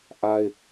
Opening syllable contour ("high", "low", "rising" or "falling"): high